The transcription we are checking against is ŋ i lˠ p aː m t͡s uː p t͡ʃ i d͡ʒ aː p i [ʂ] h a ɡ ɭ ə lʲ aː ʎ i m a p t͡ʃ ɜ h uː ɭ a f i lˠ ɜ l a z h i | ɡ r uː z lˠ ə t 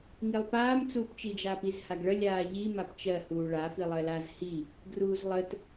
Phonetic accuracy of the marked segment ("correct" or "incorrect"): incorrect